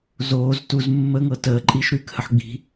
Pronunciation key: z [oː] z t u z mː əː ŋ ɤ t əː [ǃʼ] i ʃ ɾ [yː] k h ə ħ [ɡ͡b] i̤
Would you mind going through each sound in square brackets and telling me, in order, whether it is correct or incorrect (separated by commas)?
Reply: correct, correct, correct, correct